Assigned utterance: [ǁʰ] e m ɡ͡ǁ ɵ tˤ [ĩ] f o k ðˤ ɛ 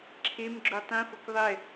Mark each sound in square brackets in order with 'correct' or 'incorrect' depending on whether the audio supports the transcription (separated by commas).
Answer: correct, correct